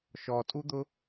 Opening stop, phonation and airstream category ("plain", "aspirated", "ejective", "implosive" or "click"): ejective